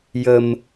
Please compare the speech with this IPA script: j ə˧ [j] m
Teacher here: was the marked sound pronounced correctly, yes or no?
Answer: no